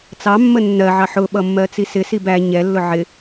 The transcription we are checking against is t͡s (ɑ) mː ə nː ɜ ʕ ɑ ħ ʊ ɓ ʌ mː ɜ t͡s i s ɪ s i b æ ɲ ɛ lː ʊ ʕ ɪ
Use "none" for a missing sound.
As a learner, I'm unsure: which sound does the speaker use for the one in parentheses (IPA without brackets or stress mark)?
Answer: ɑ